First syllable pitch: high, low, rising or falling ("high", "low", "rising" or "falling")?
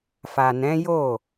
low